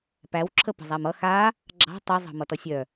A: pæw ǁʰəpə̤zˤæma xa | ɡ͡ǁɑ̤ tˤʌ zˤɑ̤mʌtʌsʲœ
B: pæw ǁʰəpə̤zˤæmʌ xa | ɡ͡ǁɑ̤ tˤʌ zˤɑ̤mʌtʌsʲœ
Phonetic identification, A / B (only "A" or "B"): B